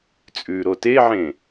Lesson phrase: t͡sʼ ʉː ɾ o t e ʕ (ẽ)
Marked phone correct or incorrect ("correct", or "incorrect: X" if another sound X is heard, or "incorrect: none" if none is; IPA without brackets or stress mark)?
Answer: correct